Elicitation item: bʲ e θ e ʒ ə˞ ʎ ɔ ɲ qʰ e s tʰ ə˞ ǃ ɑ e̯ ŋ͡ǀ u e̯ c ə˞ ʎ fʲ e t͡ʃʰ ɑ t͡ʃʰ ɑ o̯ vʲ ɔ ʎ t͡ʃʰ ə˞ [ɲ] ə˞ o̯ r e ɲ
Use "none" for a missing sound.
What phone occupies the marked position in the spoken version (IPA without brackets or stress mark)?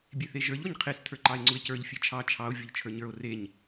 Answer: ɲ